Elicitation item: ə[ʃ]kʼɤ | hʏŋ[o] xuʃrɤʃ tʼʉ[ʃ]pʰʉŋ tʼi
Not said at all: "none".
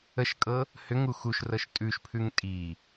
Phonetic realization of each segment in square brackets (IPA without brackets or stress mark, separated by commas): ʃ, u, ʃ